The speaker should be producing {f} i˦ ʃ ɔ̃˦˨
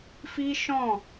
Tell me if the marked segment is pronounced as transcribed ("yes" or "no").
yes